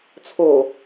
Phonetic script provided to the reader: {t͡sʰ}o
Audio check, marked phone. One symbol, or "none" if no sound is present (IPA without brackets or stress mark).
t͡sʰ